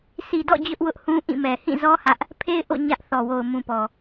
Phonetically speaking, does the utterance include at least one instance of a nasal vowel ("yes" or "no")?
yes